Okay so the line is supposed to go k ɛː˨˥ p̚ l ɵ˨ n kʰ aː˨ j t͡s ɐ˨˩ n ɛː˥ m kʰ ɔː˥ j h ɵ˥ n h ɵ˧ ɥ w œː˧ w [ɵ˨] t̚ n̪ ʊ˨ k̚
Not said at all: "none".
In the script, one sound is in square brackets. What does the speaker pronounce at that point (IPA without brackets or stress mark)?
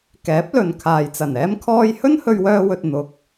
ɵ˨